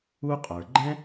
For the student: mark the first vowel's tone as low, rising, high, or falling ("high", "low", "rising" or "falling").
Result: high